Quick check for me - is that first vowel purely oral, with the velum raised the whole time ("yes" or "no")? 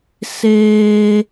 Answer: yes